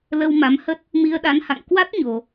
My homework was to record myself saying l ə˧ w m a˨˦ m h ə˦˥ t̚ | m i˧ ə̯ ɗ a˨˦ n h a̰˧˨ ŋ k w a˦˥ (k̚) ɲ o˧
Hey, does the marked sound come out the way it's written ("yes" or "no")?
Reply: no